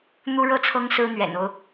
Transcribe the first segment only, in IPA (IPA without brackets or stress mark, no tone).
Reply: n̪